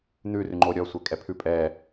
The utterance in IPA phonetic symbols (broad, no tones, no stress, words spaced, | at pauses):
n̪ʉrʉŋ͡ǃo ɾʲɔsʷɛkʼɛ pʰʉ pʼɛ